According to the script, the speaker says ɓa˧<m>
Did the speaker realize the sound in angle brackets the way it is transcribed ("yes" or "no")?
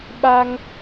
no